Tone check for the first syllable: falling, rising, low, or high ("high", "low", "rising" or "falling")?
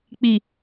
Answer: low